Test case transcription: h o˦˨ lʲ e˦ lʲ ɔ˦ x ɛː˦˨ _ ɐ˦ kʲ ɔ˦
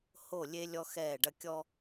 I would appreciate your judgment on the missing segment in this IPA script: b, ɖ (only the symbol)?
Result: ɖ